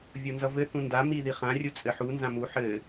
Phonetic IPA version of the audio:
vʲ o n z ʌ v ɘ θ ũ n d a m i ð i χ ã rʲ u t͡sʼ ɘ ħ u n z ã m u ħ ɘ

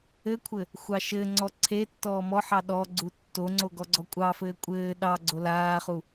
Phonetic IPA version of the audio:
ɘ kʷʰ ɘ | xʷ ɑ ʃ ɘː ŋ͡ǀ ɔ ǀʰ e tː ɔː m ɔ ħ ɑ ɗ ɔ ɡ͡ǀ u tː o ŋ͡ǀ o ɡ ɔ ɡ͡ǀ ɔ kʷʼ ɑ f ɘː kʷʼ ɘː ɗ ɑ ɡ͡ǀ o l aː χ u

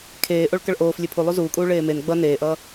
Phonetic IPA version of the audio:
kʰ eː ʔ o ɭ k ʌ ɭ ʔ oː f lʲ e pʰ u lˠ u z uː kʼ uː ɭ eː m e n ɡ͡b ʌ n eː ʔ ʌː

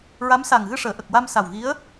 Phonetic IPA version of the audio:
ɹ a˧˥ m s a˨˩ ŋ ɣ ɨ˧ ʂ əː˨˩˨ ʔ ə˨˩ k̚ w a˧ m s a˨˩ w ɣ i˧˥ ə̯

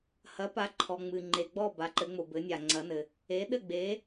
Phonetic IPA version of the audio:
h ɐ˩˥ p a˩˥ ǃʰ ɔ˩ ŋ͡m ɨ˩ ŋ͡ǃ e˩ ɡ͡b ɔ˥˩ b a˩˥ ǃ ɘ˩˥ ŋ͡m o˩ b ɘ˩˥ nʲ a˩ ŋ͡ǀ ɐ˩˥ n ɘ˩ | e˩˥ ɗ ɘ˥˩ ɡ͡b e˩˥

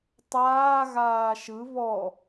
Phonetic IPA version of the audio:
tˤ aː ɣ aː ʃ ɯ β ɔ

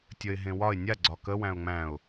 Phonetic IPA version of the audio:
tʲ ə ɪ̯ ɦ ẽ w ɒ ɪ̯ nʲ a ɡ͡ǀ ɒ k ə w æ̃ ʊ̯ ŋ͡m æ̃ ʊ̯

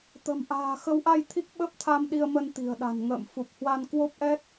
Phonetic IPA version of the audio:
t̪ ə̤˨˩ m ʔ a̤ː˨˩ x ə˨˦ w ʔ a˧ j t̪ʰ i˦˥ k̚ ɓ ə˦˥ p̚ t̪ʰ a˧ m ɗ i˧ ə̯ m ə˧ n t̪ i̤˨˩ ə̯ ɗ a̤˨˩ n ŋ ə̰ː˧˨ m f u˨˩ p̚ h w a˧ n k w o˦˥ p̚ ʔ ɛ˦˥ t̚

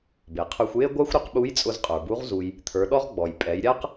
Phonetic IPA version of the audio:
b e˩ qʰ ə˞˧ xʷ j e˥ ɡʷ a˥ xʷ ɾ ʊ˧˥ q ɓ u˧˥ j t͡sʼ ʊ˧ z qʼ ə˞˩ b u˧˥ ʁ z u˧ j | t̪ʰ ə˞˩˧ ɗ ɔ˥ ʁ ɡ͡b ɔ˩ j pʼ ɛ˩˧ j ɾʲ a˥ q

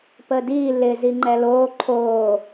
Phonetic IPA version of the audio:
p ə d i l ɪ z i ŋ͡ǃ ɛ l oː ǃʰ oː

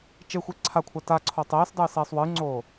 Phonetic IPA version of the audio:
t͡ʃ e xʷ e ǀʰ a kʷʰ a t a ǀʰ oː tˤ eː s dˤ ɨː s eː sˤ w ɨː ŋ͡ǀ oː

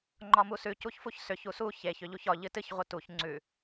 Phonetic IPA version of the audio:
ŋ͡ǃ ɒ m u s ʉ c u ç f u ç s ʏ ç u s u ç e ç ʏ ʎ u ç ɒ ʎ ɨ t ɨ ç ʁʷ ɨ t u ç ŋ͡ǀ ʉ

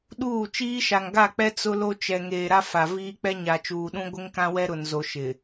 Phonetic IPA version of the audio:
ɗ uː˦˨ t͡ʃ iː˦ ʃ a˨ ŋ ɡ a˦˨ k͡p ɛ˦ t͡s ʊ˦ l o˦ t͡ʃ ɛ˨ ŋ eː˨ ɾ a˦ f a˨ v iː˦ k͡p ɛ˦ ɲ a˨ t͡ʃ uː˨ ɗ ũ˦ ɡʷ ɪ˦ ŋ k ã˦ w ɛ˦ ɾ ʊ˨ n z o˨ ʃ ɪ˨

